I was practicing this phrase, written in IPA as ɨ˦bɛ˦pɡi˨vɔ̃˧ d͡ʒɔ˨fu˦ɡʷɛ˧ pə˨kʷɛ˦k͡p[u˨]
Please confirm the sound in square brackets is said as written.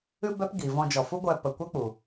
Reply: yes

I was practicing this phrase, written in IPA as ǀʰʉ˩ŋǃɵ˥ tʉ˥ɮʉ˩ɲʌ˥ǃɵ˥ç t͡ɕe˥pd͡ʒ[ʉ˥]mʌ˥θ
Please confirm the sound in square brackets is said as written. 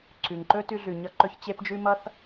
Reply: yes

